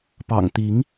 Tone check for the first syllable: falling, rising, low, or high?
low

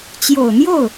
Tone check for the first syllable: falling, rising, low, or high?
low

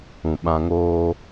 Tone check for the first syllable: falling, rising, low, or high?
low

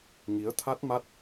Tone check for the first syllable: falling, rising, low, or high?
rising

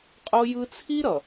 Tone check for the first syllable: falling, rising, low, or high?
high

